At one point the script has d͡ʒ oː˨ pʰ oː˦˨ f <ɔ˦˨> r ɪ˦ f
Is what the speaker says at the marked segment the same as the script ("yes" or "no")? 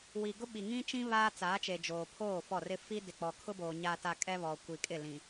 yes